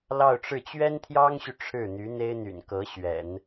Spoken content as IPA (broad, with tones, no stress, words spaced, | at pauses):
lɑ˥˧ʊ̯ʈ͡ʂɻ̩˥˩ t͡ɕɥɛ˥nt̪ʰjɑ˥ŋɕy˨ ʈ͡ʂʰɻ̩˥˩n̪y˧˥n̪e˥ɪ̯n̪y̰˨˩n kɤ˧˥ɕɥɛ̰˨˩˦n